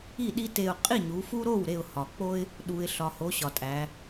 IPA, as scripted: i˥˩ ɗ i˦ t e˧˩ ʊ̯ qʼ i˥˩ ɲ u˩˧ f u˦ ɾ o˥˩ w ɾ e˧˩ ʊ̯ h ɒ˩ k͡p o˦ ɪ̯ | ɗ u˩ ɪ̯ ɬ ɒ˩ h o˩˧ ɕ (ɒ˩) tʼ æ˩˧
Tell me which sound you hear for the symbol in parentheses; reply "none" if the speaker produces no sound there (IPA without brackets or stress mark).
ɒ˩